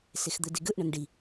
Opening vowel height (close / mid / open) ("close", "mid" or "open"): mid